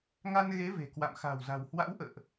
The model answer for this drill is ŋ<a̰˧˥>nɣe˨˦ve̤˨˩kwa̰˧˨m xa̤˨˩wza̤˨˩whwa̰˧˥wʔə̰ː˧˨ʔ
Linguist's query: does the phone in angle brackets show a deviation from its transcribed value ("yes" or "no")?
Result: yes